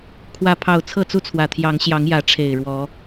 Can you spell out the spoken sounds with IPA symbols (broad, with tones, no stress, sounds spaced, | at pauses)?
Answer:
kʰ w ä˥˨ pʰ ɑ˥˨ ʊ̯ t͡sʰ ɤ˥˨ t͡s u˥˨ t͡sʰ w ä˨˩ t̪ʰ j ɑ˨˦ ŋ ɕ j ɑ˨˦ ŋ j ä˨˦ ʈ͡ʂʰ e˨˩ ɪ̯ ɻ w ɔ˨˦